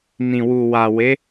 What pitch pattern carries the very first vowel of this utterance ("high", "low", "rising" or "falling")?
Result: low